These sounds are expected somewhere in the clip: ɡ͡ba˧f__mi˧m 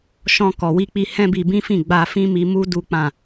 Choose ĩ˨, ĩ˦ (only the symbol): ĩ˦